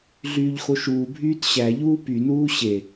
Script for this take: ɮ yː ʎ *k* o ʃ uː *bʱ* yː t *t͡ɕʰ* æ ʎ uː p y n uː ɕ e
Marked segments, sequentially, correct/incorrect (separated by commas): incorrect, correct, incorrect